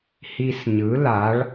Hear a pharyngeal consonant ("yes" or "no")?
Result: no